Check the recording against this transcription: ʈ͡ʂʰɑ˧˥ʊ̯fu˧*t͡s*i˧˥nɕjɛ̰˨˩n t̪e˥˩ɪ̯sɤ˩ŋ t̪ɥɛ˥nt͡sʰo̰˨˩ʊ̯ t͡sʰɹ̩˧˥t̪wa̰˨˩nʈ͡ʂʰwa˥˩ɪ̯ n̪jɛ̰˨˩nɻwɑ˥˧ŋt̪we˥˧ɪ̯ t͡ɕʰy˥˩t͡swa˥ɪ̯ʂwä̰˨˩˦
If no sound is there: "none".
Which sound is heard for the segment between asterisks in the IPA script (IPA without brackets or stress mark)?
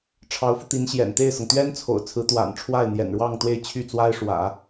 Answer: t̪